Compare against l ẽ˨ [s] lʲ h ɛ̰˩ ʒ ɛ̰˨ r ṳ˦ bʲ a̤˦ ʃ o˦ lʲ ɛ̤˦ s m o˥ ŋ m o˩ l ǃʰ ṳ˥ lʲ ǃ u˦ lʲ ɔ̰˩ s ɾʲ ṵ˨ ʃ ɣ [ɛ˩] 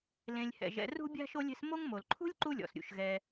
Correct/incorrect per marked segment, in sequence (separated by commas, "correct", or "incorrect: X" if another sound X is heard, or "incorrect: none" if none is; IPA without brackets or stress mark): incorrect: none, incorrect: ɛ˨